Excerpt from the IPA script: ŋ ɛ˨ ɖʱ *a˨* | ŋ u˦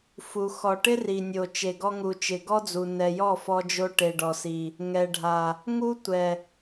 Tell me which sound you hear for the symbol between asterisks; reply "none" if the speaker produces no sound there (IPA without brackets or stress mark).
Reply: a˨